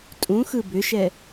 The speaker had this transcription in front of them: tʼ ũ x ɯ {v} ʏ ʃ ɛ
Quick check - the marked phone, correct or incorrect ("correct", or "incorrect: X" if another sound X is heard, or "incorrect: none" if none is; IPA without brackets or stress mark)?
incorrect: b